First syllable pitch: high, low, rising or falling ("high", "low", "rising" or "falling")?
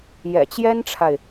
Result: low